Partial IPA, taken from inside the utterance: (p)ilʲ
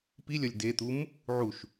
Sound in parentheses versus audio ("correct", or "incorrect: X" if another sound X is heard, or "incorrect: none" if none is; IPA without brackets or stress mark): correct